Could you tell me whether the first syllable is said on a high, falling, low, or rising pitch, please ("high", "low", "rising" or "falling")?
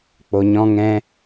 low